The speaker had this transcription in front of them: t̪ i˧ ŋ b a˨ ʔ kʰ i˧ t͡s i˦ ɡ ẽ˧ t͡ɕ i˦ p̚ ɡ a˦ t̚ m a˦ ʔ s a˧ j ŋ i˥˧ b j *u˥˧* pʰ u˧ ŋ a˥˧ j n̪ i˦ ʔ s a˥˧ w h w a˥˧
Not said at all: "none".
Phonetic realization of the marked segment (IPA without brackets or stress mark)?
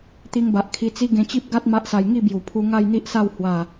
u˨˩